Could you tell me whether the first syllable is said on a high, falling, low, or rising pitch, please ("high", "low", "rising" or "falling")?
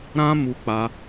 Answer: high